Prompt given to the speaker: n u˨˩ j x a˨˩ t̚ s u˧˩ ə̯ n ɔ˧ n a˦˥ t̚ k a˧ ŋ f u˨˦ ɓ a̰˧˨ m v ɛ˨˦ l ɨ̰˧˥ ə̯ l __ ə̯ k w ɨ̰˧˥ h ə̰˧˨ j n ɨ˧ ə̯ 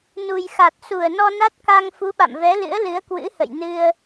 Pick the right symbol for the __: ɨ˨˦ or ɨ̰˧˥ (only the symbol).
ɨ˨˦